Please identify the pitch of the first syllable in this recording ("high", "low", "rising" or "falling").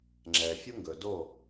low